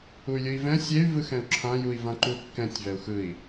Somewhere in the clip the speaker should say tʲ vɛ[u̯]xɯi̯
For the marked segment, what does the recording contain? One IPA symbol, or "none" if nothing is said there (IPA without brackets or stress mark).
u̯